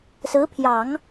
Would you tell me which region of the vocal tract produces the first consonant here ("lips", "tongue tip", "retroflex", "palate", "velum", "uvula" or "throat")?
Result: tongue tip